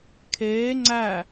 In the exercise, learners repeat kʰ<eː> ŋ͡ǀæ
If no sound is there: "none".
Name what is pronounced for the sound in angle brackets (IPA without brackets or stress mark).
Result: eː